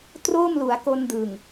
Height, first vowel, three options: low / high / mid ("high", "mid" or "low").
mid